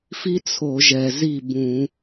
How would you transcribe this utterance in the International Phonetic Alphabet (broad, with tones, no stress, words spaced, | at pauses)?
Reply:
fi˥t͡sʰo˧˩˧ʒɛ˨˩ zi˥˩bũ˧˩˧